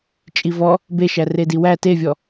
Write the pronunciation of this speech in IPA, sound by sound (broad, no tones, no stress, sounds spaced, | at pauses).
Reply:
t͡ʃʼ i v ɔ | b e ʃ æ r e d i w æ t e vʲ ɔ